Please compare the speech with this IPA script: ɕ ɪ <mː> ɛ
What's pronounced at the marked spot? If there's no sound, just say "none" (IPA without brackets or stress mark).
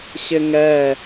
ŋ